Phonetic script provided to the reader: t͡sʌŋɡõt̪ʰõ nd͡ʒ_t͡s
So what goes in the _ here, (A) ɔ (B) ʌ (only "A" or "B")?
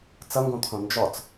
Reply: A